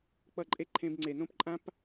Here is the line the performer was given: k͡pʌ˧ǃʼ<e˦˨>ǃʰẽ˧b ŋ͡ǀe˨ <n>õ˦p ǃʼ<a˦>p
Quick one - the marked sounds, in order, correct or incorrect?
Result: correct, correct, incorrect: ã˦

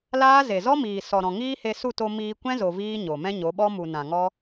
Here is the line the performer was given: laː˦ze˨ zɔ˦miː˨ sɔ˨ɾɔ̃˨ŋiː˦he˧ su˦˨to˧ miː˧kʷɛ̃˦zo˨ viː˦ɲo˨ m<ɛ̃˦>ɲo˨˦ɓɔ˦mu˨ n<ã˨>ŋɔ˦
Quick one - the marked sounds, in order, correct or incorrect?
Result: correct, correct

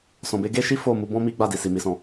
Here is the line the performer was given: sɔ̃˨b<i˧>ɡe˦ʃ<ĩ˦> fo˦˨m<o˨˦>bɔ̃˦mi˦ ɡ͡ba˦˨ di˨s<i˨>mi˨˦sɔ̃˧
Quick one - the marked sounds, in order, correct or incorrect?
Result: incorrect: e˧, incorrect: i˦, incorrect: u˨˦, correct

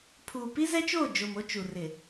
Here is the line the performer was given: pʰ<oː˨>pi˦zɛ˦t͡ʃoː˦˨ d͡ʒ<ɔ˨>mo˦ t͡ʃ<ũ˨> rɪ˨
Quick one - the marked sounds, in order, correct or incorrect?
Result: incorrect: uː˨, incorrect: o˨, incorrect: u˨

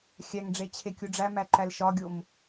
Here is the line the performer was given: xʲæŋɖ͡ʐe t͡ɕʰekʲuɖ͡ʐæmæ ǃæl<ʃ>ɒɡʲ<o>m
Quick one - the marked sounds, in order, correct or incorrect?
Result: correct, correct

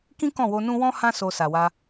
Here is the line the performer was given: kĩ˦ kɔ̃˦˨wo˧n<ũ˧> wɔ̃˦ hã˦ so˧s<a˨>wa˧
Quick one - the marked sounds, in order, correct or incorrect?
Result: incorrect: ũ˦, correct

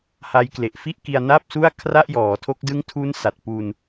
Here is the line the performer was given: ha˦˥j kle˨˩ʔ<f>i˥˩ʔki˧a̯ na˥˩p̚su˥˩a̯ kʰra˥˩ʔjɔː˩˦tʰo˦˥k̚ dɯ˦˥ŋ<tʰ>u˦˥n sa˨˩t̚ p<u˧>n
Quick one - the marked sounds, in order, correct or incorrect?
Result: correct, correct, correct

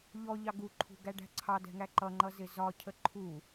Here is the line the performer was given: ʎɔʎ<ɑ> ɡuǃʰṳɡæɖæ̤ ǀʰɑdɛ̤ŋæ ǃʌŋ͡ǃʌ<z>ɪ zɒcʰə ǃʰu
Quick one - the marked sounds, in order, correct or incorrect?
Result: correct, correct

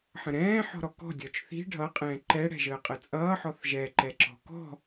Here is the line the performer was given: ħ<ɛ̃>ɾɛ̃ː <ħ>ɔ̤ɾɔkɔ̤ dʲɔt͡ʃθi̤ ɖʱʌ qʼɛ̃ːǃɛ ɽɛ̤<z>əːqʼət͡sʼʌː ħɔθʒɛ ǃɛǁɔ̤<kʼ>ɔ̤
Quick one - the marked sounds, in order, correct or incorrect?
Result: incorrect: ə̃, correct, incorrect: ʒ, incorrect: k

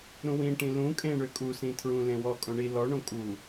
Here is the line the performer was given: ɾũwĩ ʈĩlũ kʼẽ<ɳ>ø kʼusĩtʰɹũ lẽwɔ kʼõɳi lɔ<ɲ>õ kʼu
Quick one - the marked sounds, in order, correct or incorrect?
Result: correct, incorrect: ɳ

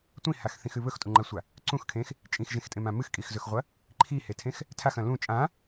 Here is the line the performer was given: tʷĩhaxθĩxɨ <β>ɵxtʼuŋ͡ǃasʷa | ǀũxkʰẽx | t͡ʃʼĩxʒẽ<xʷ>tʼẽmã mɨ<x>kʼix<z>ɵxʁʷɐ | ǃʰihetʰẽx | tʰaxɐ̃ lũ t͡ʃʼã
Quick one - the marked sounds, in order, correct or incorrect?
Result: correct, incorrect: x, correct, correct

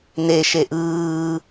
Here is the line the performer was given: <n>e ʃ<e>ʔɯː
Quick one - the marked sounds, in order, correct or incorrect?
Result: correct, correct

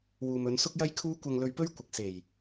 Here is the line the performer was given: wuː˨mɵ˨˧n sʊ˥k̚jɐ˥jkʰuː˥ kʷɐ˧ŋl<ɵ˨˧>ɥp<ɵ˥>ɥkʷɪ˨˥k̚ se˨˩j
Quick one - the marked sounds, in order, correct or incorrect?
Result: incorrect: ɵ˧, correct

